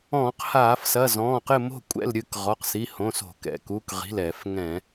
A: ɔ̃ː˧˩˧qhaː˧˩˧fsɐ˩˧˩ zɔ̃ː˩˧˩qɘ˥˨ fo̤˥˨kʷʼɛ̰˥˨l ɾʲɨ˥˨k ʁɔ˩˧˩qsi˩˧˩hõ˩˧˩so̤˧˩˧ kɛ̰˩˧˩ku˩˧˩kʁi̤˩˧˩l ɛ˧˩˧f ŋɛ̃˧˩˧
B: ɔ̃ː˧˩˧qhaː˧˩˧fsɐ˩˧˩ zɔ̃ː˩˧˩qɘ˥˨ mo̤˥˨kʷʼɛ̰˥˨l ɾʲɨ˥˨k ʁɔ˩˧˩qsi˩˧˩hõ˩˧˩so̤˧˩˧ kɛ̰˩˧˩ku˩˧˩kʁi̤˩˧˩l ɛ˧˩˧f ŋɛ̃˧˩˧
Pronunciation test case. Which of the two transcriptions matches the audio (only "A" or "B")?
B